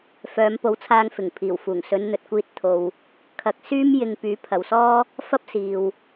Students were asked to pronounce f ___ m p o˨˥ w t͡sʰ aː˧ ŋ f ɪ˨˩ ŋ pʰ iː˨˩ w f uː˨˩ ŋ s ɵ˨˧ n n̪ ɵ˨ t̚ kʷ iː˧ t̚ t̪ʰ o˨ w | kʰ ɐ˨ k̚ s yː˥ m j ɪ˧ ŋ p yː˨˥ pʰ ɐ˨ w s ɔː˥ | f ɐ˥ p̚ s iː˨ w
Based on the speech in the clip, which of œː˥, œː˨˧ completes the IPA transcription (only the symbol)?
œː˨˧